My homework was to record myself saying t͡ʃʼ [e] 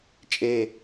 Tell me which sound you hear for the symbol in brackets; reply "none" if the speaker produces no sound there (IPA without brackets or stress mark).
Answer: e